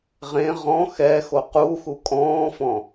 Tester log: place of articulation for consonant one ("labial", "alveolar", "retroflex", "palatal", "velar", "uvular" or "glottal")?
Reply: uvular